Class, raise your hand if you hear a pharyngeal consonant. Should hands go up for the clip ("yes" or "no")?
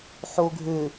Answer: yes